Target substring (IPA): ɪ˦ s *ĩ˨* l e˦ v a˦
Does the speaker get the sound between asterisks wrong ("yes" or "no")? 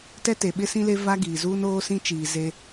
yes